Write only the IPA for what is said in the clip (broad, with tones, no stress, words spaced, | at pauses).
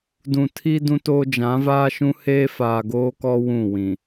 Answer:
dũ˨tʰi˦ dũ˦toː˦ d͡ʒã˨˦vaː˦ʃũ˦ heː˦faː˨ɡoː˦kɔ˦ wũ˦˨wĩ˨